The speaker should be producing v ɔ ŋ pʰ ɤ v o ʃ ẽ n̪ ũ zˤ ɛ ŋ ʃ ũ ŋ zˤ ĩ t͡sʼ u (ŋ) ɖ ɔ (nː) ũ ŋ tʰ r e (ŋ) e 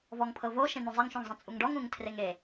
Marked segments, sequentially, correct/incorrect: correct, incorrect, correct

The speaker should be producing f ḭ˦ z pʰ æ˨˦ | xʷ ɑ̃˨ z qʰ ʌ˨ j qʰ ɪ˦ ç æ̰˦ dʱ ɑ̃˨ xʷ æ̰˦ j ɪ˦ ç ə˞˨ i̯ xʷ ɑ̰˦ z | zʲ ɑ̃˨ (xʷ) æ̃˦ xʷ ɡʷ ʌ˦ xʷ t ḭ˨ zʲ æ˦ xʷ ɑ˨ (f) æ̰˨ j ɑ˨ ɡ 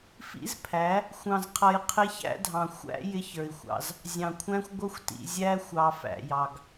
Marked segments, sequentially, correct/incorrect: incorrect, correct

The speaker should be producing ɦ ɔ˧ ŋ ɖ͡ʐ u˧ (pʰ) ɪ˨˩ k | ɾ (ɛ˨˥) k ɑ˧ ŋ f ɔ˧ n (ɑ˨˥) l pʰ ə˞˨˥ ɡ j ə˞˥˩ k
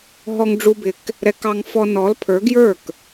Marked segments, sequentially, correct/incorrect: incorrect, correct, incorrect

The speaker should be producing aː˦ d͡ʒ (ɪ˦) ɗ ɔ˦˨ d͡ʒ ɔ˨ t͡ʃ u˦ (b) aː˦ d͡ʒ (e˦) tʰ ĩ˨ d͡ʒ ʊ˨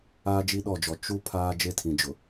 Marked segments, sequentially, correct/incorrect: incorrect, incorrect, correct

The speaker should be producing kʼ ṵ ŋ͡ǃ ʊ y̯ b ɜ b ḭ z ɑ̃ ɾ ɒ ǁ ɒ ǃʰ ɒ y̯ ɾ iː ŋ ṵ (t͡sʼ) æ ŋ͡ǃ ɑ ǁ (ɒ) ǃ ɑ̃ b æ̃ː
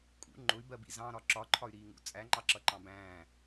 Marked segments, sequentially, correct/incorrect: correct, incorrect

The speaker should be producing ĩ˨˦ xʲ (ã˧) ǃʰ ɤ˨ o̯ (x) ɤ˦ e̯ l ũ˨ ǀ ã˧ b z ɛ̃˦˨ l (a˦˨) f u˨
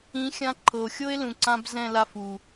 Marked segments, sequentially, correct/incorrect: correct, incorrect, correct

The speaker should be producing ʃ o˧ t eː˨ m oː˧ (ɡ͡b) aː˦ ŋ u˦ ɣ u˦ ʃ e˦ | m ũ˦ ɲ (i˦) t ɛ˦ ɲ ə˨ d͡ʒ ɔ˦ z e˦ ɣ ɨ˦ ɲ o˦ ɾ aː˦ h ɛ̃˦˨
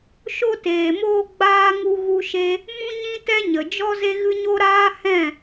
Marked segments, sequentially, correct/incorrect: correct, incorrect

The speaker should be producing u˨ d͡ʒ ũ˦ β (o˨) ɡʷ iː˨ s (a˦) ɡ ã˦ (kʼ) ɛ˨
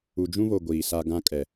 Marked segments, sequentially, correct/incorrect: correct, correct, correct

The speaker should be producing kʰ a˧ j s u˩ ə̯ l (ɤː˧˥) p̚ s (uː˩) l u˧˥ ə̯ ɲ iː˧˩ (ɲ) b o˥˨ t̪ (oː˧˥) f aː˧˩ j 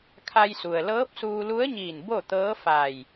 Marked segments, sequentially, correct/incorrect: correct, incorrect, incorrect, incorrect

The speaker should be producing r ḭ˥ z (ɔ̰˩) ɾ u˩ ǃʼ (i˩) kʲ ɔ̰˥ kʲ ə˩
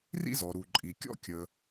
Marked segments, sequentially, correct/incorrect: incorrect, correct

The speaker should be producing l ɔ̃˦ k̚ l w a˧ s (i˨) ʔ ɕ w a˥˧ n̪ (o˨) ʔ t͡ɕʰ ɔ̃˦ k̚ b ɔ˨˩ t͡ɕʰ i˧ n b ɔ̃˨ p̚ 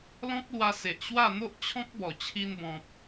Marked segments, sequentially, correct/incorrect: incorrect, incorrect

